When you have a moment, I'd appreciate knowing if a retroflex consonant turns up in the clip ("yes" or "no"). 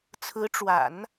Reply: yes